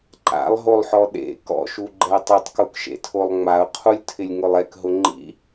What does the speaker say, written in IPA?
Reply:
ǃa̰lˠɦolˠħɔ ɗḛ kɔ̰ʃuɡ͡ǃɛ tˤɪtˤkukʃḛtʰolˠ ŋ͡maʊ̯qʰulʲtʰɪlʲŋʊlˠ ɛkɦʊ ŋ͡ǃḭ

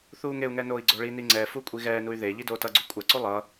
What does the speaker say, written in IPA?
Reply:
θuːŋeu̯ŋɛ noːi̯ɡ͡ǀoɭini ŋ͡ǀɛ fukʷʼiɣɛːnuy̯ ðe ʎidoːtʌɡ͡ǀu kʷʼɛǀu lˠʌ

